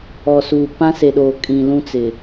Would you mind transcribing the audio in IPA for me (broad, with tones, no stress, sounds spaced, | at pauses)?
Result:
ɔ˨ s uː˨ p ã˦ s e˨ ɗ oː˨ kʼ ĩ˨ l ũ˦ t͡s ɪ˨